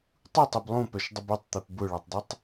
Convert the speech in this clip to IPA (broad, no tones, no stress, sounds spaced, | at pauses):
tˤ u tˤ e b lˠ ũ p œ ʃ dˤ ə b u tˤ t̪ e p b ʊ ɭ a tˤ dˤ i tˤ